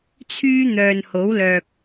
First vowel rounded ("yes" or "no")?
yes